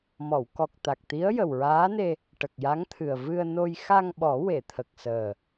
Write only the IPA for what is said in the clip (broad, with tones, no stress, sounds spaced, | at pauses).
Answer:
m ɔ˨˩˨ w k ɔ˨˩ k̚ t̪ a˨˩ k̚ t̪ i˧˥ ə̯ j ə˨˩ w ɹ aː˧˥ n e˧ | ʈ ə˨˩ k̚ j a˧˥ ŋ t̪ʰ ɨ˨˩ ə̯ v ɨ˧ ə̯ n o˧ j x a˧ ŋ ɓ ɔ˨˩˦ w e˨˩˨ t̪ʰ ə˨˩ k̚ s əː˨˩